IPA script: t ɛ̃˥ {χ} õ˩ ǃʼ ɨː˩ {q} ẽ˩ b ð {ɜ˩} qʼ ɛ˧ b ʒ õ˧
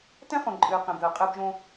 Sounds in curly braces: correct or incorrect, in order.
correct, correct, correct

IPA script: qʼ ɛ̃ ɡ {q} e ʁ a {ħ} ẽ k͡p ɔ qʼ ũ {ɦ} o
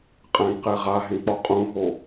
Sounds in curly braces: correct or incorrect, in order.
correct, incorrect, correct

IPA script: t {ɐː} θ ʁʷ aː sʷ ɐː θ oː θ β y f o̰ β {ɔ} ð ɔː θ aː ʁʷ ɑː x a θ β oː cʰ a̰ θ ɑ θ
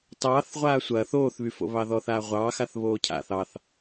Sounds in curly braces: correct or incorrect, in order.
incorrect, incorrect

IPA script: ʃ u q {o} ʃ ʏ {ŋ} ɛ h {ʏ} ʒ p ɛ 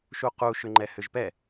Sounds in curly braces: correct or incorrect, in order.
incorrect, incorrect, correct

